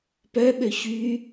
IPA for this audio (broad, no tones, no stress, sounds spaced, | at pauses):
p œ ɓ ø ç y